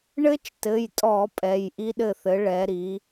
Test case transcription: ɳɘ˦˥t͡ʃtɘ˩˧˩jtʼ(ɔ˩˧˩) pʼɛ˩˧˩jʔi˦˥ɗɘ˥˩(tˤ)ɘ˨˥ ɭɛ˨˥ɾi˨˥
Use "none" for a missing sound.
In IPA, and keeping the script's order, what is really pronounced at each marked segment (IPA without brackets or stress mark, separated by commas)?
ɔ˧˩˧, θ